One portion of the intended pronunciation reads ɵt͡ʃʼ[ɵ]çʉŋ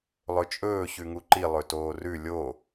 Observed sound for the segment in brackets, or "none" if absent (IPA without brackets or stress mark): ɵː